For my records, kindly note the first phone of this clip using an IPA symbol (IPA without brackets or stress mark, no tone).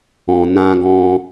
ɔ̃